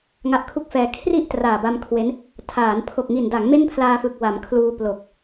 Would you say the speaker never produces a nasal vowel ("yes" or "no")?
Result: yes